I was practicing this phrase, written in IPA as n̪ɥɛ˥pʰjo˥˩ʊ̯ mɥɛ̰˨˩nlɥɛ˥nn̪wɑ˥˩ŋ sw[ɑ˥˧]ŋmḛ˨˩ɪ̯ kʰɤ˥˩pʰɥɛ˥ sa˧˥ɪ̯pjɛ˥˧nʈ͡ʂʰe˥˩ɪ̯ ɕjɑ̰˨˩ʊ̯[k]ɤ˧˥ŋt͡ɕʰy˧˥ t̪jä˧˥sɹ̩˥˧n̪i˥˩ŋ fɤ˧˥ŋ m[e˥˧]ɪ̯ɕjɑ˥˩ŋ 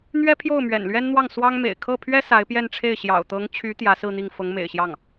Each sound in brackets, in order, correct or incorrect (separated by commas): incorrect, incorrect, incorrect